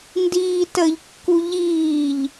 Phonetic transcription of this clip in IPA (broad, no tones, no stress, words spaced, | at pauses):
ndiːtəʎkːu ʎiːʎ